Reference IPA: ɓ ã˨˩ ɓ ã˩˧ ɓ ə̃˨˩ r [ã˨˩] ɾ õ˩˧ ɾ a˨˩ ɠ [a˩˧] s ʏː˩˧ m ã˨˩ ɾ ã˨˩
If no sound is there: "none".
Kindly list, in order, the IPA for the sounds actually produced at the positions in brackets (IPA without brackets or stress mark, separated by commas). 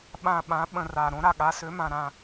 a˨˩, a˩˧